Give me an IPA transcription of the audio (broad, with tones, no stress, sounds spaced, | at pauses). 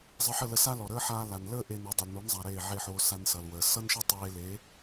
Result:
zˤ ə˧ ħ ə˥˩ l ə˧ s a˥ l ɔ˩ ɾ əː˥ ħ aː˧ l a˩ n l əː˥ ʔ e˧ n o˩˥ dˤ ʌ˩ l n o˩˥ n zˤ a˩ ɾ eː˥˩ ʕ e˥˩ ħ oː˧ s a˧ n s ʌ˩ l w əː˩ s ʌ˥ n ʃ ʌ˥ tˤ eː˧ l eː˩˥